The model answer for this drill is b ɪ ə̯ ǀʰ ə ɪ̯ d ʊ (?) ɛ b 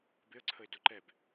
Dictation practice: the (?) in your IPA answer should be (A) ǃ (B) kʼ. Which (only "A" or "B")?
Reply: A